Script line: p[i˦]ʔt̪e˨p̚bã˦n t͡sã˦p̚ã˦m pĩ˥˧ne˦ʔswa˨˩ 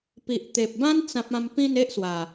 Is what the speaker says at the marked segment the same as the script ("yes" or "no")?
no